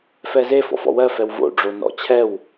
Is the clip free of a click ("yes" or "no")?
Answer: yes